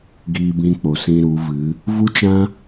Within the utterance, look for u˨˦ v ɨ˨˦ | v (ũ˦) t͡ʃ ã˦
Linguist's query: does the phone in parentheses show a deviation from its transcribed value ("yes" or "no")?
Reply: yes